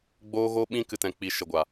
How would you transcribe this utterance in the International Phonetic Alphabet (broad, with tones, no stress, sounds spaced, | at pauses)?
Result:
ɡ͡b oː˦ ɣ o˦ ɓ ĩ˦ k ɨ˦ t ɛ̃˧ k͡p i˧ ʃ ə˨ ɡʷ a˨